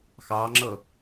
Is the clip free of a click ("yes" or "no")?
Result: no